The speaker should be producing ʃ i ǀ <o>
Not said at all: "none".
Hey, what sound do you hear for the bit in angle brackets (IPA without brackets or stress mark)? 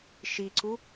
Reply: u